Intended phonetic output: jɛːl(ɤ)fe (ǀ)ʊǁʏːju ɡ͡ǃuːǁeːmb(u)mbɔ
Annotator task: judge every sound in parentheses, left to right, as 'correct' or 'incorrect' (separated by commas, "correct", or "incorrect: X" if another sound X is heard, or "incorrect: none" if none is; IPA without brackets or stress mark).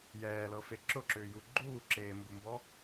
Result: correct, incorrect: ǁ, correct